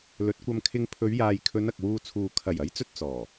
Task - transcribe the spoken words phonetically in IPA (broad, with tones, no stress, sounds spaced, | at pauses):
l ɵ˨˥ t̚ kʷ ɐ˧ m kʰ ɪ˧ ŋ pʰ ɵ˨˧ ɥ j aː˨ j kʰ ɵ˨˧ n ɐ˨ k̚ w uː˧ t͡sʰ uː˨ kʰ ɐ˨˩ j ɐ˨˥ j t͡s ɵ˧ t̚ t͡s ɔː˨˩